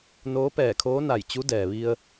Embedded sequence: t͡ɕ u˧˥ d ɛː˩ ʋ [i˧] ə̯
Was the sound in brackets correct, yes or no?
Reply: yes